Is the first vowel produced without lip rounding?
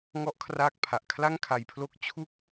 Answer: no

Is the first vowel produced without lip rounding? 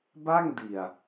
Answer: yes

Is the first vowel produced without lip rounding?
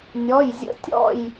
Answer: no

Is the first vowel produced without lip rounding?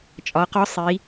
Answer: no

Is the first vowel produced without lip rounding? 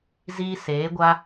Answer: yes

